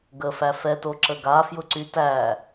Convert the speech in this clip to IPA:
ɡəfæ fɛtoǁə ɡafjʊǀy tæ

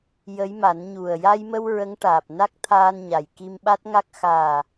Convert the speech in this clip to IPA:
jə˧˥jma˨˩˦nɲu˨˩ə̯ ja˧jmə˧w ɹə˧˥ŋʈaː˨˩p̚na˦˥k̚t̪ʰaː˧n ɲa˨˩jki˧mɓa˦˥t̚ ŋa˦˥k̚ xaː˨˩

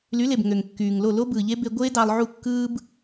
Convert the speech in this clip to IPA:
ly˨˦le˨b ŋø˨ŋkːyː˨ŋlo˦˨ lo˦bɯː˨ʎe˦ be˦ ɡʷeː˦dɑ˧lˠʕu˦˨ kːɯː˦b

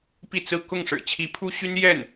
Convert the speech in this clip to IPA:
pi˥˧t͡sɹ̩˥˧ kʊ˥˩ŋʂɻ̩˨˩ t͡ɕʰi˧˥pʰu˥ɕy˥n jɛ˥˩n

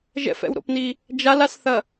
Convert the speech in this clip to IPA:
ʒɛ̰fɛ̰wɾo̰pni | d͡ʒalasθɐ

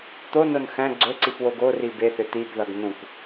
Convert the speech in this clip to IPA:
t̪onon xæ̃ ɡ͡ǀɵǀip woɡori beθʏ t̪ibðʌɡ nũk

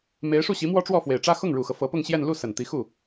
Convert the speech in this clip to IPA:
me˧˥ɪ̯ ʂu˥˩ɕi˧˥ mwɔ˥ʈ͡ʂwɔ˥˩fwe˨˩ɪ̯ʈ͡ʂä˥ xʊ˥˩ŋɻu˨˩xɤ˦ fɤ˧˥pʊ˥˧ŋɕjɛ˥˧n lu˥˩ sə˨˩nt̪i˧˥xu˥˩

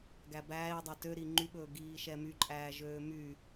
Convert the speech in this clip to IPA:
ɡæbæːi̯dˤɛ tø ɾiŋ͡ǃyɓɵː ɡiːʃɛmyǃʼæː ʒøːmy

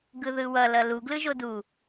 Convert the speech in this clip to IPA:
ɡɯðɯwʌ lʌlu ɡlɯʒodu

